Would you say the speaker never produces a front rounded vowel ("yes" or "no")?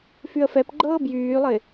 no